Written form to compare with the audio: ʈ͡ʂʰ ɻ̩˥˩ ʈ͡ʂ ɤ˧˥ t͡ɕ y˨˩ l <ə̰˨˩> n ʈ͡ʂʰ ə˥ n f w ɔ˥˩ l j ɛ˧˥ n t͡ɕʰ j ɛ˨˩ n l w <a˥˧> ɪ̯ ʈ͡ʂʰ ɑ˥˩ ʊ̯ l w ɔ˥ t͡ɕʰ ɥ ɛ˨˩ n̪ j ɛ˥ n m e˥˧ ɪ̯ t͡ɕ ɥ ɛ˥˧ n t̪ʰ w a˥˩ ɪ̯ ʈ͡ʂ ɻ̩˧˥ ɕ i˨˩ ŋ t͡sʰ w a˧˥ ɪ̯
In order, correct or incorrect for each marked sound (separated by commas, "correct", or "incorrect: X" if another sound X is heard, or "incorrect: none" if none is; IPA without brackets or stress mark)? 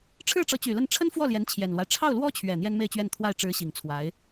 incorrect: ə˥˩, incorrect: a˦